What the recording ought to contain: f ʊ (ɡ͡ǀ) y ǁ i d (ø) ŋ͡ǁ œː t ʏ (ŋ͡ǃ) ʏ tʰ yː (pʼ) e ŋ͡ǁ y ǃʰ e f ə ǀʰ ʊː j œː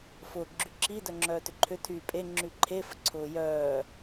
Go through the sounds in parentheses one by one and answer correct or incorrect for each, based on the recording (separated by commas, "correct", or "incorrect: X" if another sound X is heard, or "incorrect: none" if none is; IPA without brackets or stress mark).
incorrect: ɡ͡ǁ, incorrect: œ, incorrect: ǃʰ, correct